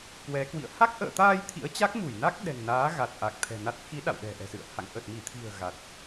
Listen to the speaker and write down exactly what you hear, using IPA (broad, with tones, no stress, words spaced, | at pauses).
kwɛ˨˦kwḭ˧˨ə̯ ha˦˥k̚ʔə̰ː˧˨t̪aː˧j t̪ʰḭ˧˥ə̯t͡ɕa˦˥k̚mu˧˩jna˦˥k̚ ɗɛ̤˨˩ŋnaː˨˦ ɣa˨˩t̚ʔa˨˩k̚t̪ʰɛ̤˨˩ na˨˩t̚xi˨˦ ɗa̰˧˨wɗɛ̤˨˩ʔɛ̤˨˩sɨ̰˧˨ə̯ ha̰˧˨ŋ ʔə˨˩t̚mi˧˩t̪ʰi̤˨˩ə̯ ɣa˨˩t̚